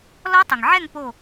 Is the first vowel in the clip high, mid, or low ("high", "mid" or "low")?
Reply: mid